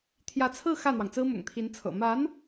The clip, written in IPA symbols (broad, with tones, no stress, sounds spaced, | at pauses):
t̪ʰ j ä˧˥ t͡sʰ ɹ̩˥˧ x ä˥˩ n̪ w ɑ˩ ŋ t͡s ɹ̩˥ m ʊ̰˨˩ ŋ t̪ʰ i˧˥ n t͡sʰ ɤ̰˨˩ m a˧˥ n